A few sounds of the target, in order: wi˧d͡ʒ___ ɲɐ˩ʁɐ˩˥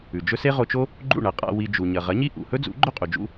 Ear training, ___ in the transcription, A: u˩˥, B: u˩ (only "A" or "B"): B